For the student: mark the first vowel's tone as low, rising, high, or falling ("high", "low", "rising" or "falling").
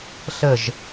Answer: falling